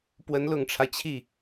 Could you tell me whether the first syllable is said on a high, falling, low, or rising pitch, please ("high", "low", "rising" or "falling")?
rising